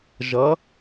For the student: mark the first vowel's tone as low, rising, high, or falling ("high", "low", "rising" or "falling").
rising